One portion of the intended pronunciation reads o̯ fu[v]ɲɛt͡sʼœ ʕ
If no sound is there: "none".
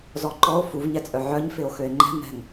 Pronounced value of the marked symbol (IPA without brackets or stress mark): v